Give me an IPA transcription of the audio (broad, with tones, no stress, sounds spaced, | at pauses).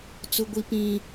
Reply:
t͡s ʊ˦ ɡʷ i˦ p ĩ˦